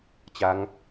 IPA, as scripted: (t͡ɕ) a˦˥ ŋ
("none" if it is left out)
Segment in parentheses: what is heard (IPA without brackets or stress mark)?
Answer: t͡ɕ